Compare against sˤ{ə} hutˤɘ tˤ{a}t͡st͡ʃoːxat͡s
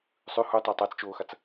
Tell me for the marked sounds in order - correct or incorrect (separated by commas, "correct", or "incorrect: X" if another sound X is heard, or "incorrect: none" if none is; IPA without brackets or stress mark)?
incorrect: ʉ, correct